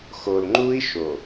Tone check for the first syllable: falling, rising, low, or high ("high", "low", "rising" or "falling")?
low